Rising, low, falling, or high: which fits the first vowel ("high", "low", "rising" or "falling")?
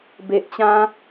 low